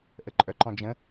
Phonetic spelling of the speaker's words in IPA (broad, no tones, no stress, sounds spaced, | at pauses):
ʔ ə ǃʼ œ ǃ ɔ̃ d͡ʒ ə̃